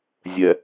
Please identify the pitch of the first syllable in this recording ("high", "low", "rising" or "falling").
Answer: low